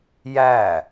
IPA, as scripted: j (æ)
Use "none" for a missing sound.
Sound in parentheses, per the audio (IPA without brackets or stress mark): æ